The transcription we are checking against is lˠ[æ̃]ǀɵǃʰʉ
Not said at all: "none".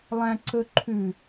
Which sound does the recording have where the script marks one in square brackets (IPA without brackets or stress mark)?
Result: æ̃